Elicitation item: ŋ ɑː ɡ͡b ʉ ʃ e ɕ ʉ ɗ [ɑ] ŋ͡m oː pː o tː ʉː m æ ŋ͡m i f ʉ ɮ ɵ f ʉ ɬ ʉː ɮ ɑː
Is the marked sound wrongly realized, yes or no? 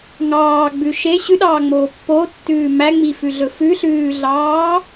yes